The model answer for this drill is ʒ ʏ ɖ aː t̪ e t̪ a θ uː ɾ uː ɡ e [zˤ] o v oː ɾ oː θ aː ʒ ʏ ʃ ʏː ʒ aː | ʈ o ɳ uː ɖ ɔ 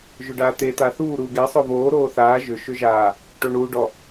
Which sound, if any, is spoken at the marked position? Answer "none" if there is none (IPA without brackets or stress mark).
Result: sˤ